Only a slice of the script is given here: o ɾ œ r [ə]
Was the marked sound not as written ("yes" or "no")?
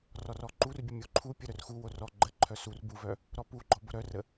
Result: no